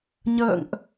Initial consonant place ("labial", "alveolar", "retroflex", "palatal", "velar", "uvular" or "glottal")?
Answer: palatal